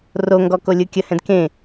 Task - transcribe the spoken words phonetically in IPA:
r o ŋ ɡ ɔ k o lʲ ɯ kʲ ə h ɛ̃ d k ẽ

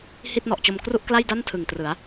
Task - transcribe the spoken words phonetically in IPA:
h i˥˩ t̚ n ɔ˨˩ ʔ t͡ɕ o˧ m k r u˥˩ ʔ k l a˥˩ j d a˥˩ n tʰ ɯ˨˩ ŋ t r ɯ˩˦ a̯

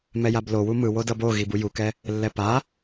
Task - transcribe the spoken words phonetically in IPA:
m ɛ j a b l o w u m ɯ w o d ʌ b o ɣ i b u j u k ɛ | lː ɛ p a

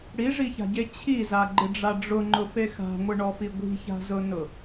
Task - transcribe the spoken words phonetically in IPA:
ɽ i ʐ i ç a̤ ɟ e t͡ɕʰ i z a ɡ͡ǃ ɪ ɖ͡ʐ a ɖ͡ʐ ʊ ŋ͡ǃ ʊ f e x a̤ ŋʷ ɪ ɳ ɔ f i ɡʷ i̤ ç a̤ z ʊ n ʊ

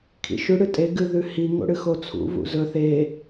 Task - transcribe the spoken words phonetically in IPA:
kʰ ḭ ʃ ʉ ɽ ɨ tʼ e ɡ ɨ ð ʉ h i ŋ o̰ ɽ ɨ x o t͡sʰ ṵ v ṵ z ɵ θ e

